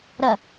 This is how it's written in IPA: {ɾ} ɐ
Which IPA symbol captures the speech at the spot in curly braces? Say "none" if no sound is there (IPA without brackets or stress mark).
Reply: ɾ